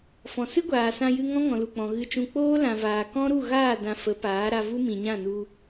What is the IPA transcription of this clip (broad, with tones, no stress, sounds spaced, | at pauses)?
f ɔ̃˨ s ɨ˦ ɡʷ aː˨ s ã˧ j ɨ˧ ŋ ɔ̃˦ ŋ ɔ̃˨ l u˨ k͡p ɔ̃˨ ɣ ɨ˧ t͡ʃ ũ˧ k͡p oː˦ l ã˨ v aː˨ k ɔ̃˦ ɾ u˦˨ ɣ aː˦˨ d ã˧ f ə˨˦ p aː˨˦ ɾ a˧ v u˦ m ĩ˨ ɲ ã˦˨ n u˧